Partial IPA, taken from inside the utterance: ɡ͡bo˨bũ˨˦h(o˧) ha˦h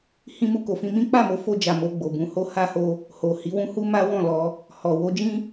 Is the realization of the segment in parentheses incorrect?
yes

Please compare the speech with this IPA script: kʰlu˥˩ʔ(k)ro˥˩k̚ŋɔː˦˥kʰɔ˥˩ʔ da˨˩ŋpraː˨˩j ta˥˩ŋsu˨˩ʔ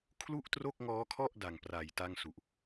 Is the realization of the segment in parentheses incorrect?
yes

